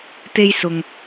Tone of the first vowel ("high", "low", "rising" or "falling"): high